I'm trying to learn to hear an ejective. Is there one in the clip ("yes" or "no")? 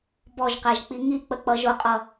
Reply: yes